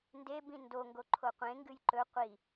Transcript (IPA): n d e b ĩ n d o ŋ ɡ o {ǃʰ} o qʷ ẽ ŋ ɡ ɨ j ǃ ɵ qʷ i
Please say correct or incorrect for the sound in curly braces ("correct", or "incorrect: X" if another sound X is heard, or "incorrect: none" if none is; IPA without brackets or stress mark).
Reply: correct